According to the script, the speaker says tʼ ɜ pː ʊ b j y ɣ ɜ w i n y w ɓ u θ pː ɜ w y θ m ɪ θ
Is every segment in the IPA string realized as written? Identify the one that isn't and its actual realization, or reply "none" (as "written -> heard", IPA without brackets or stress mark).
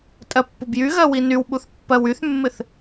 m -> mː